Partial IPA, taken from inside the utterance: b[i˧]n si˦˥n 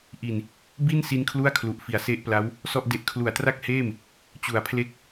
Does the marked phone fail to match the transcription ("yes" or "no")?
yes